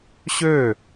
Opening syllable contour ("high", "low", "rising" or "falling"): falling